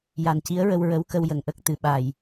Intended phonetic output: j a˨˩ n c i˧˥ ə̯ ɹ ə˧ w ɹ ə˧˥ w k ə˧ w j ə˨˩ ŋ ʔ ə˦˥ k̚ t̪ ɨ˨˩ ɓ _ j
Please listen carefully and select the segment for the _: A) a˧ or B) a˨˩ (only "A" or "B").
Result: B